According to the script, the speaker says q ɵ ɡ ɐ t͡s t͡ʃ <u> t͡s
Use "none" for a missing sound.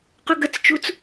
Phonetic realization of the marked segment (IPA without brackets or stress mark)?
u